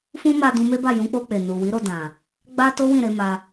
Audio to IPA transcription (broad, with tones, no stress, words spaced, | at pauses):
fũ˦ma˧ dũ˧me˦ba˦˨ jũ˨˦k͡po˧k͡pe˨ nu˨wi˨˦ɾo˧ dã˨ | ɡ͡ba˦to˦wĩ˦˨ ɾe˨˦ma˧